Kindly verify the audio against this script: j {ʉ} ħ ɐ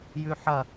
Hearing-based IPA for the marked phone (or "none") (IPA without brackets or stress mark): ʉ